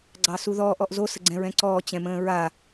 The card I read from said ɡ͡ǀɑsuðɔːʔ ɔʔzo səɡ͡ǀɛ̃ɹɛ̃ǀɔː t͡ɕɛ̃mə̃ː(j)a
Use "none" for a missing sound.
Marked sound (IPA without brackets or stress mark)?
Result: ɹ